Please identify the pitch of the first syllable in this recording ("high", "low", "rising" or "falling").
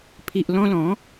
low